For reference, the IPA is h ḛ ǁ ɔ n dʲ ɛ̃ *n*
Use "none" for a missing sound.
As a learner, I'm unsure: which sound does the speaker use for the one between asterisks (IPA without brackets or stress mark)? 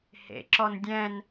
n